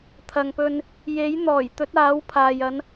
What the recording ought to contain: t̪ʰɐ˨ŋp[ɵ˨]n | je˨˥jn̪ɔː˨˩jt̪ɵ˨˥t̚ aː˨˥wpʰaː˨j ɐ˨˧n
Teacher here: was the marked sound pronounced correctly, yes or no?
no